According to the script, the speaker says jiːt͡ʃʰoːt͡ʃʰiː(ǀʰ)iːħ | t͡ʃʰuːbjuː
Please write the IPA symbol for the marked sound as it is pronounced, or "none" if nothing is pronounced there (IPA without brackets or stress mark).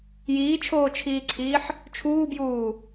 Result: ǀʰ